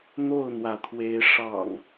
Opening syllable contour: falling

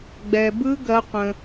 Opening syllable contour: low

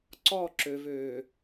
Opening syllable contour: falling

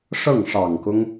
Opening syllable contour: falling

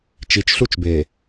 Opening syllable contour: low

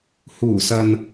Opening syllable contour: low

